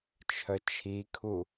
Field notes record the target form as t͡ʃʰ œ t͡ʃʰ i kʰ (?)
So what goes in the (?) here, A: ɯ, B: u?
B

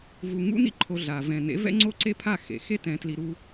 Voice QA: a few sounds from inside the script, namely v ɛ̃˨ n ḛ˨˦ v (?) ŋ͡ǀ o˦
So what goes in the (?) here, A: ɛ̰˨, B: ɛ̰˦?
B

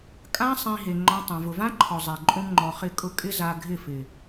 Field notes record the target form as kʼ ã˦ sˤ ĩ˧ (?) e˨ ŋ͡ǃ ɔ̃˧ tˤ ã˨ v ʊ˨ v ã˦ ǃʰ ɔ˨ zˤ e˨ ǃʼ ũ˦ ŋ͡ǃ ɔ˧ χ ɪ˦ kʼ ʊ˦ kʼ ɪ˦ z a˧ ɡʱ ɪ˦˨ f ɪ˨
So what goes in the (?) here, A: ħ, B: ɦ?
B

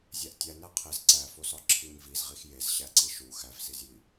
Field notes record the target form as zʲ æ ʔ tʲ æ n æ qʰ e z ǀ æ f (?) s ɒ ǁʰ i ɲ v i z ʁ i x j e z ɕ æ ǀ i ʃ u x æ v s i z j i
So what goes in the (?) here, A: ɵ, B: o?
B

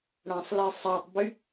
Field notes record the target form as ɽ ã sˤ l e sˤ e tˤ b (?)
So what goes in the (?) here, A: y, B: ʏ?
A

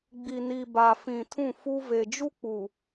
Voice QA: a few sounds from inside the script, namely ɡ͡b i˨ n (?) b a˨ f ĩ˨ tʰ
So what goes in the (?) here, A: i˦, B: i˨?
B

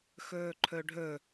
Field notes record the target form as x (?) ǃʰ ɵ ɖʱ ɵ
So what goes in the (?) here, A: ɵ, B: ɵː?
B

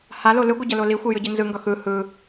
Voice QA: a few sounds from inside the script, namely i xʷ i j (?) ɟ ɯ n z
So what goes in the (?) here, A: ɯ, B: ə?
A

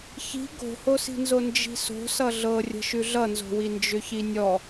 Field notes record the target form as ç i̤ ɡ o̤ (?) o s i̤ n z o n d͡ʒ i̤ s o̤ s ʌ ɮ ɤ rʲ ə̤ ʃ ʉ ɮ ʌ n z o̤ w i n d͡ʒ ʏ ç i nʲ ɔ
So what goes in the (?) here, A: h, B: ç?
A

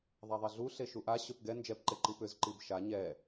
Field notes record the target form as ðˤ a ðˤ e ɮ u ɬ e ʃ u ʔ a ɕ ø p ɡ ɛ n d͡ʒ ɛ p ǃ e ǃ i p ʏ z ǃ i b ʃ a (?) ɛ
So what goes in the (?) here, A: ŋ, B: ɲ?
B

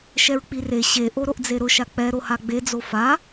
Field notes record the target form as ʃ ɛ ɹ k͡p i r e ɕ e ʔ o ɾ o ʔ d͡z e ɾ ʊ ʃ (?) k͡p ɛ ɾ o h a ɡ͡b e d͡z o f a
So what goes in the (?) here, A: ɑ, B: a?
B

